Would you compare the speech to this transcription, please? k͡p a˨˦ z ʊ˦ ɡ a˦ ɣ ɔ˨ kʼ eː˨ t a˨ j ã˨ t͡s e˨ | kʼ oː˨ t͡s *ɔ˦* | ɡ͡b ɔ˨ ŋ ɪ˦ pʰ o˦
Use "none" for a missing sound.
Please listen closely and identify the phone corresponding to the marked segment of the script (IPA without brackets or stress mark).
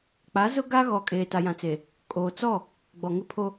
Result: ɔ˦˨